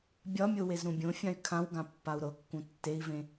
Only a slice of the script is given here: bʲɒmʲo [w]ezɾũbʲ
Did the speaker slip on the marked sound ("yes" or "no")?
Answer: no